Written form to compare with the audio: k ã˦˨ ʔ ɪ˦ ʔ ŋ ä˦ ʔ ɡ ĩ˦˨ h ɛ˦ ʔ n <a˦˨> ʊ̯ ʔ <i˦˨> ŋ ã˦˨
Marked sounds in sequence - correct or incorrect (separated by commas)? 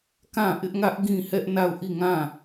correct, correct